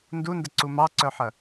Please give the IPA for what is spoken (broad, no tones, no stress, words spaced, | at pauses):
ndundəǀu mɑǀœħɐ